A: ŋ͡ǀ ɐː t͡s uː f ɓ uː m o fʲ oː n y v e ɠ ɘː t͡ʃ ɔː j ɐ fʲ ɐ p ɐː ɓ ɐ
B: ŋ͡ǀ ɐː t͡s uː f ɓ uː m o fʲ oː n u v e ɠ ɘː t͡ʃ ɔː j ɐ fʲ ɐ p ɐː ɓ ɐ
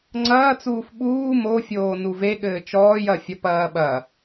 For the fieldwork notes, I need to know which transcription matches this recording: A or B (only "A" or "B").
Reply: B